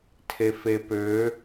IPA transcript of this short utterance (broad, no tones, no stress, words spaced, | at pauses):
tʰefepø